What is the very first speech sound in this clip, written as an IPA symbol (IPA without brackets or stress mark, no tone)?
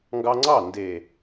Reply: ŋ